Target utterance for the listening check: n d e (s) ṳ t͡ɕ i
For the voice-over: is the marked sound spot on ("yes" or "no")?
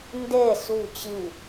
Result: yes